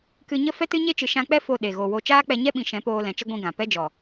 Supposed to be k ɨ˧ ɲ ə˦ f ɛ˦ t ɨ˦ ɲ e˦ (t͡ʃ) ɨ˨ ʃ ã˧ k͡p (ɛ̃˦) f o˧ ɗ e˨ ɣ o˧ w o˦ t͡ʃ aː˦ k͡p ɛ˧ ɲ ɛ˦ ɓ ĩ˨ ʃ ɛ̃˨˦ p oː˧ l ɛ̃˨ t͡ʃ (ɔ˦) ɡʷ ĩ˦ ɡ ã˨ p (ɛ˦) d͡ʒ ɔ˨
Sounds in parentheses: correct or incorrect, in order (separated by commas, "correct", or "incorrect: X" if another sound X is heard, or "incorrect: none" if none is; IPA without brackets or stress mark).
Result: correct, incorrect: ɛ˦, incorrect: ə˦, correct